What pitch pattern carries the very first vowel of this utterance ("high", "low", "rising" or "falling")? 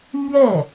falling